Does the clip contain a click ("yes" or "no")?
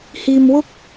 no